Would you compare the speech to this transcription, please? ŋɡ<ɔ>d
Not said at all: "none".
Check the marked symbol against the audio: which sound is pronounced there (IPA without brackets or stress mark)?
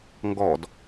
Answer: ɔ